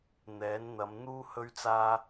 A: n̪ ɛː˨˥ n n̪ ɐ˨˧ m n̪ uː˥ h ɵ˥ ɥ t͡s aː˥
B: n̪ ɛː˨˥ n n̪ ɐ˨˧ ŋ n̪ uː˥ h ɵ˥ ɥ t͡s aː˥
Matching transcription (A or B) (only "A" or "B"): A